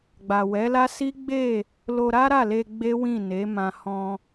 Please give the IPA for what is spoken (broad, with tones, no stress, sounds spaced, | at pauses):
ɡ͡b a˨ w ɛ˨˦ l a˦ s i˦ ɡ͡b e˦˨ | l o˧ ɾ a˦ ɾ a˦˨ l e˧ ɡ͡b e˦ w ĩ˦˨ n e˨˦ m ã˧ h ɔ̃˧